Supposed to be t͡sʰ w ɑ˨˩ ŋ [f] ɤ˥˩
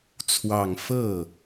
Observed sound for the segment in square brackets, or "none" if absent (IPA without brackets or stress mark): f